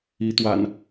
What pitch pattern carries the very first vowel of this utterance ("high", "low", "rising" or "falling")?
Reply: rising